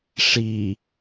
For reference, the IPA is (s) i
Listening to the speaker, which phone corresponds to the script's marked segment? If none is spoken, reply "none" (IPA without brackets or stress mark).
ʂ